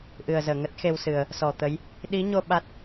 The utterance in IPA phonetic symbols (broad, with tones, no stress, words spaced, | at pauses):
ʔɨ˨˩ə̯ zəː˧˩ŋə˦˥t̚ xe˧wsɨ˨˩ə̯ | sɔ˧˩t̪ə˨˦j | ɗi˨˦ɲo˧ ɓa˦˥t̚